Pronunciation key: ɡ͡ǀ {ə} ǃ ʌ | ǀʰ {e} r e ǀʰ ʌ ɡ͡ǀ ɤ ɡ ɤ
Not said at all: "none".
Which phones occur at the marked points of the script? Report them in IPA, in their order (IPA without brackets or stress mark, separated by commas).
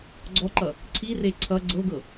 ɔ, i